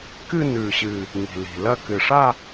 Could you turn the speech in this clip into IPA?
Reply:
k ɨ˥˧ n ʉ˨˩ ɕ ɨ˨˩ | ŋ i̤˨˩ l i̤˨˩ l ɐ˥˧ k ɨ˨˩ ʂ a˥˧

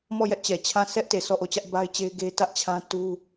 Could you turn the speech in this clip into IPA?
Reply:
m ɔ˦˨ j ɛ˦ ʔ t͡ɕ ɛ˨ t͡ɕʰ ã˦˨ sʰ ɛ˦ ʔ t e˨ sʰ ɔ˦˨ ʔ o˦˨ t͡ɕ ä˦ ʔ b a˦ ɪ̯ t͡ɕ e˦ ɪ̯ ɡ e˦ t ä˦ ʔ t͡ɕʰ ã˦ t u˦

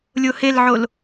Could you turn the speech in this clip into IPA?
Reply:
lʲ o h e l ʕ o l

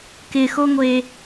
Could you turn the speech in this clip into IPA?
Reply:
k ɪ x o ŋʷ e

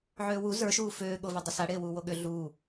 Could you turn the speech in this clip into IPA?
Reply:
ʕ øː w u z ə˞ ʃ uː f øː ɠ o v e dˤ ʌ s a ɽ eː w uː w o ɠ ʏ ɮ uː

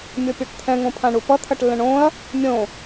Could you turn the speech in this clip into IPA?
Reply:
mʲ o pʲ o ʈ t̪ʰ ɛ̃ ŋ õ pʰ ã ɳ u p ʌ t̪ʰ ʌ ʈ lː ə̃ ɳ õ ɐ̯ | mʲ õ

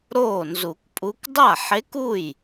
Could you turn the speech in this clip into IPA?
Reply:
ɾ oː˥˩ n z u˨˩˦ k pʼ u˧˥ k dˤ a˥˩ ħ e˧˥ k u˥˩ j

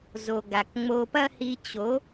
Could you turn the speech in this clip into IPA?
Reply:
z o˨ ɡ a˨ k ŋ͡m o˧ p ɐ˦ h i˧ t͡ɕ o˨˦

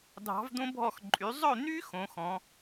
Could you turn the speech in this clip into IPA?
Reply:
dʱ ɑ̤˧˥ v d̪ õ˥ bʱ ɔ˥˧ x ǃʼ y˧˥ zˤ ɵ˥˧ n̪ y˥ x õ˧˥ x ɔ̃˧˥

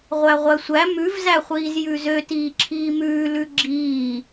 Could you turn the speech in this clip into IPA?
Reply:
ʁʷ æ ʁʷ æ sʷ æ m ʉ v z æ χʷ iː z j ʉ z ø t iː ǁʰ iː m ʉː l ʉ ɡ͡ǁ iː

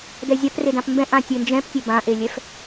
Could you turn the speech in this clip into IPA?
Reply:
d ɛ zʲ a p r e d ã p m b ɛ̃ ʔ ã tʲ ɘ n d͡ʒ ɛ̃ p tʲ ɘ b ã ʔ e lʲ ɛ f

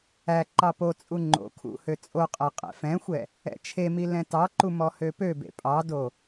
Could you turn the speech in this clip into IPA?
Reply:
æ ǃ ɑ p o t͡sʼ u ŋ͡ǃ o̰ kʰ ṵ h ø t͡sʼ o qʼ æ qʼ ɛ̰ f ɛ̃ xʷ ɛ | ɛ̰ t͡ʃʰ e m i l ɛ̃ t ɑ ǃ u m ɔ h ø p ø b ḛ pʼ ɑ d o

